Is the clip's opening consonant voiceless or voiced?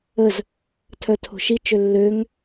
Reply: voiced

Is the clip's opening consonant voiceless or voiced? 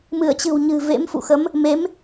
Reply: voiced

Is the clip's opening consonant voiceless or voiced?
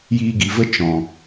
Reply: voiced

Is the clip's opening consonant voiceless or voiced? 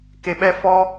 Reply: voiceless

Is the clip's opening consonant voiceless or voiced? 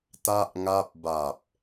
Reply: voiceless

